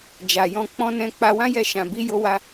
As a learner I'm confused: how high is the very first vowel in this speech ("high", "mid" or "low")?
low